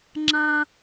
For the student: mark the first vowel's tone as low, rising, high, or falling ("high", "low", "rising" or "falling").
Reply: high